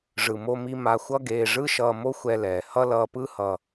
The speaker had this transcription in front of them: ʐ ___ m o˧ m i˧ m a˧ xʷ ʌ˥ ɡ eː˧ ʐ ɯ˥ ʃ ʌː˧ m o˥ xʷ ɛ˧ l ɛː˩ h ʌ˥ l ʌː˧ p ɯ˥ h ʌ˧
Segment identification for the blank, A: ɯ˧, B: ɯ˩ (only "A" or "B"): B